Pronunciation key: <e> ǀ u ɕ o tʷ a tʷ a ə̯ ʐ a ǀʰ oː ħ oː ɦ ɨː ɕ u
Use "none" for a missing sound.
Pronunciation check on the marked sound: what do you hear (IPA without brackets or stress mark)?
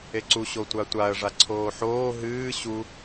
e